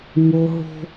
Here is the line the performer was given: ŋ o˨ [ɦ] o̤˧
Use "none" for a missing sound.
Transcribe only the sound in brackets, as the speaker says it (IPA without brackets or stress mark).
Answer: ɦ